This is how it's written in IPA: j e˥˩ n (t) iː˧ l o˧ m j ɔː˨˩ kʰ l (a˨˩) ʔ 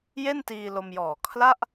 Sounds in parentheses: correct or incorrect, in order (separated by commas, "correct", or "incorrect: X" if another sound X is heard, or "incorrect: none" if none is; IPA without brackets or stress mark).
correct, incorrect: a˥˩